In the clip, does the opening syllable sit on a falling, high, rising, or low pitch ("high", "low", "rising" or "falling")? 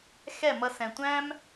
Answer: falling